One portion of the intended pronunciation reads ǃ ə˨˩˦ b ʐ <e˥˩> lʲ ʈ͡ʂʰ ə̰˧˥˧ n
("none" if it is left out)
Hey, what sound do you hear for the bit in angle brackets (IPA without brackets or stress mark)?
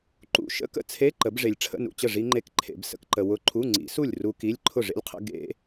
e˨